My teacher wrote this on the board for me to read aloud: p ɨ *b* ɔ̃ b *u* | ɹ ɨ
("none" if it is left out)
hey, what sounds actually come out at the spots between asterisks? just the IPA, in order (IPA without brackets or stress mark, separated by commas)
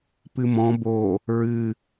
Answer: m, o